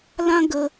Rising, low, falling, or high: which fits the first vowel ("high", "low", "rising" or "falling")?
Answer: high